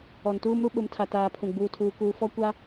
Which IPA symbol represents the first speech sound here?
ɔ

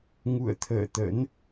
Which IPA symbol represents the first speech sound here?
ŋ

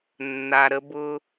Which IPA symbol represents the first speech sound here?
nː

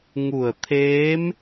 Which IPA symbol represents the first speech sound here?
ŋ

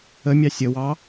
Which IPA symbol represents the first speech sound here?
ə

